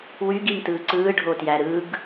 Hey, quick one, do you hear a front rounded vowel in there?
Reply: yes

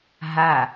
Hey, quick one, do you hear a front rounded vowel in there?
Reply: no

